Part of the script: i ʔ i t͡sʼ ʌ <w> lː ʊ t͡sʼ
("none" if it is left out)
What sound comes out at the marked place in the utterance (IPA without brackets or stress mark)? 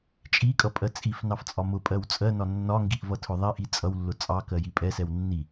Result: w